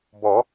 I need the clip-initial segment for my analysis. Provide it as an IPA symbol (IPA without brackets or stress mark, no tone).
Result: b